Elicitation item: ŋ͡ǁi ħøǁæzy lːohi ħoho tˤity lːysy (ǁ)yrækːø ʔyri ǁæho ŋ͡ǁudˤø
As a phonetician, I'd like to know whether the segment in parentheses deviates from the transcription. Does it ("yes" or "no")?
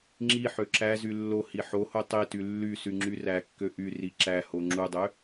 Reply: yes